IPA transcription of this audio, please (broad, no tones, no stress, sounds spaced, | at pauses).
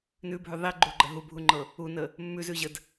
n ʉ bʱ ʉ ðˤ i ɡ͡ǃ u ɡ͡ǃ ə ɦ u bʱ u ŋ͡ǃ ɤ | u n ə | mː ʉ z ʉ ʑ ə d